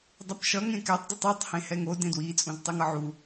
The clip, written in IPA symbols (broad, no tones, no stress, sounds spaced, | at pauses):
dˤ ɛ p ʃ ʌ ŋ ẽ k ɛ tˤ d ɯ tˤ ɯ tˤ h ẽ h ɛ ŋ o d ẽ d w i t͡sʼ ũ z tˤ e ŋ ʌ ʕ u